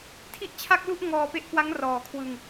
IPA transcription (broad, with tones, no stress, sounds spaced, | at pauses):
tʰ i˥˩ ʔ t͡ɕʰ a˥˩ k̚ l u˥˩ ʔ ŋ ɔː˧ p e˦˥ ʔ k w a˦˥ ŋ r ɔː˨˩ kʰ w ɯ˧ ŋ